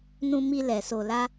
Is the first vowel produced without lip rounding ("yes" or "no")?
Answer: no